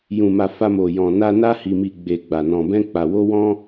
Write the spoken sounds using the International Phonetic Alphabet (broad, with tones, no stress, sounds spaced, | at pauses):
j ũ˨ m a˨ f a˧ m o˨ j ɔ̃˨ n a˧ n a˧ h i˨ m i˨ ɡ͡b e˨ ɡ͡b a˨ n ɔ̃˨ b ɛ̃˧ k͡p a˨ w o˧ w ɔ̃˧